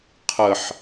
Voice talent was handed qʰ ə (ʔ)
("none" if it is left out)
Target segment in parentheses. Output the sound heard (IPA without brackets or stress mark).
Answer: ħ